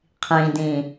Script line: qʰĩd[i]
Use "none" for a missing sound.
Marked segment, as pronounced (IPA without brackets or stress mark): ĩ